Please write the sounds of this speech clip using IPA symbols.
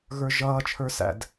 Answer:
ɣə˞ʒʌːt͡ʃʰə˞ sæ̰d

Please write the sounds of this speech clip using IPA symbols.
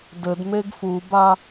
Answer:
dɘdmeɡ fuba

